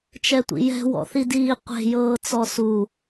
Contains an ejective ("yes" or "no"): no